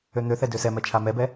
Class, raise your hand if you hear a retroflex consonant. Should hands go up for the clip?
no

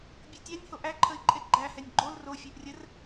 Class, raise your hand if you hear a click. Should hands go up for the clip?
yes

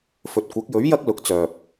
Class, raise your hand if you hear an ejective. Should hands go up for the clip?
no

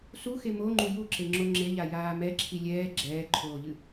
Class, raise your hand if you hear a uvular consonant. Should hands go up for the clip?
no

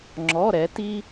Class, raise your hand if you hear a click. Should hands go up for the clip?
yes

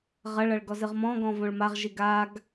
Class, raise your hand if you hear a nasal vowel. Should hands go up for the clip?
yes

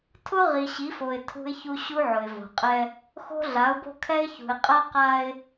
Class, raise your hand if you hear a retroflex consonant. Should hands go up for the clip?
no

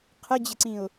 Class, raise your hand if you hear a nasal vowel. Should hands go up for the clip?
yes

